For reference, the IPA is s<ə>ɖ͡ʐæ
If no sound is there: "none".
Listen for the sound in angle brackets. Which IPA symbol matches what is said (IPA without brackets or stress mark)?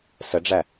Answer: ə